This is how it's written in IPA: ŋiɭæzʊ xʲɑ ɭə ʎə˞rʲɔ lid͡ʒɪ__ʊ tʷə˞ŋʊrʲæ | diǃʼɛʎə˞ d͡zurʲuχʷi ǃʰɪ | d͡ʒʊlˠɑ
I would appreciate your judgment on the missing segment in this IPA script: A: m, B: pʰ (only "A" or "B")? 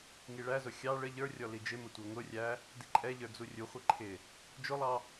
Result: A